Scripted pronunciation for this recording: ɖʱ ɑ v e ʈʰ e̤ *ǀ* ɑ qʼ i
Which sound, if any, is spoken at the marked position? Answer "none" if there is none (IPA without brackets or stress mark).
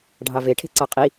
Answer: ǀ